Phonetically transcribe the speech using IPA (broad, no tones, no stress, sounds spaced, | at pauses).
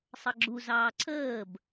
sˤ ʌ ɡ͡ǁ u z ɑː ǀʰ əː b